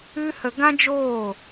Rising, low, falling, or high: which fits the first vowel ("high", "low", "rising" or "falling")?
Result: high